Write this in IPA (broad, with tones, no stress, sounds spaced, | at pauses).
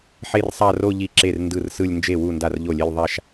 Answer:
ħ e˥˧ r sˤ a˥˧ r o˥˧ ʎ i˥˧ ǁ e˥˩ r n d ɯ˥˩ r s ɯ˥˧ lʲ n d͡ʒ e˥˩ w u˥˩ n d a˥˩ r ʎ o˥˩ lʲ e˥˧ lʲ ðˤ a˥˧ ʃ